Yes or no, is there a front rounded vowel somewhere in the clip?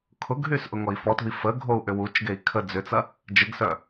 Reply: yes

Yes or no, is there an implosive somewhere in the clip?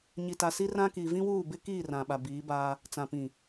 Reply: yes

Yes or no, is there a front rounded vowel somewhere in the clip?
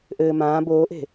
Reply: no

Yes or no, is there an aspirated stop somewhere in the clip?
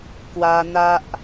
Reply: no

